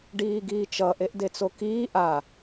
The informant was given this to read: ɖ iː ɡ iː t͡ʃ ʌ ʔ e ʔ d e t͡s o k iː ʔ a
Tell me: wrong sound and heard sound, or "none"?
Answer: none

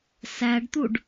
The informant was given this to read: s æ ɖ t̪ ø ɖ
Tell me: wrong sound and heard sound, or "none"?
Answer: ø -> u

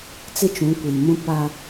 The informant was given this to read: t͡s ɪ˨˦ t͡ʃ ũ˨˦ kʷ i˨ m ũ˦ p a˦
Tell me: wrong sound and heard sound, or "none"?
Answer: ɪ˨˦ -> ɪ˦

